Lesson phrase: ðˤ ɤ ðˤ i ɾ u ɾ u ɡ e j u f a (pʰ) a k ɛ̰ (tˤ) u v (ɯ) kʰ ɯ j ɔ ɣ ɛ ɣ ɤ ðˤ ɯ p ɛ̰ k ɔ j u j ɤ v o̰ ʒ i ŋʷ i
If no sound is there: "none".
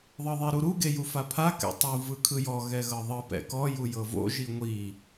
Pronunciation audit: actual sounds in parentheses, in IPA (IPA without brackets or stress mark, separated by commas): pʰ, tˤ, ɯ